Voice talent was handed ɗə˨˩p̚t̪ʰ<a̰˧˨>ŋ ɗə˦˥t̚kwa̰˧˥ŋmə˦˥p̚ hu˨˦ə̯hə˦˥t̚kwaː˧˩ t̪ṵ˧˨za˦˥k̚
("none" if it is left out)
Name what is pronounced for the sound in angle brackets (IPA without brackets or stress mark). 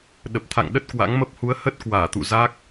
a̰˧˨